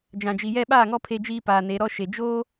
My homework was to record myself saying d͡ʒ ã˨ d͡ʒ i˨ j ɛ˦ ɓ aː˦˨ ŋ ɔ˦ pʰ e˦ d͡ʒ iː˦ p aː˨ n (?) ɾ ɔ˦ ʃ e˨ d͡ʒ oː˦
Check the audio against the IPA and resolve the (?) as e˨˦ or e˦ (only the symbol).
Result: e˨˦